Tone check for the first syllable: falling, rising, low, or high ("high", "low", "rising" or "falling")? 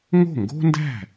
falling